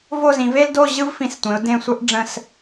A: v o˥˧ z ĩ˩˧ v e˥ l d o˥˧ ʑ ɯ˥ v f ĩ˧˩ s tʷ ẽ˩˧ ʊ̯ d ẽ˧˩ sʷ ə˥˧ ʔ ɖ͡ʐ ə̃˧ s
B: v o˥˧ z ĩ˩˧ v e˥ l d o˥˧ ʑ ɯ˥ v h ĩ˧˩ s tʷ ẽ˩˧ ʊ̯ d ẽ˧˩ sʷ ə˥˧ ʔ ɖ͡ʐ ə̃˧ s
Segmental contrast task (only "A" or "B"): A